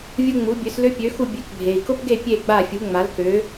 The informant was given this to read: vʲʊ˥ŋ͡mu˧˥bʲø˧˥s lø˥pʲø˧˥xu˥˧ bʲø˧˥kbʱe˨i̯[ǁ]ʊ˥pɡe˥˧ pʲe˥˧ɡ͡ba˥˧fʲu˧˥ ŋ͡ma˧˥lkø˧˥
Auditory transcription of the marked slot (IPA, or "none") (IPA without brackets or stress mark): k